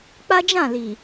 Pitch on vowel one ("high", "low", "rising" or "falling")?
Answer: high